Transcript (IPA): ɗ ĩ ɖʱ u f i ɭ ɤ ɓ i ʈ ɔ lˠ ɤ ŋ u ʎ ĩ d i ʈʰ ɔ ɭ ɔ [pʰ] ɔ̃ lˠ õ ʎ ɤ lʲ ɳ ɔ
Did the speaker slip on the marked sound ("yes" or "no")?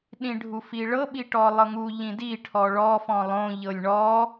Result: yes